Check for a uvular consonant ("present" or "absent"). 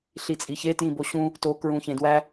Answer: absent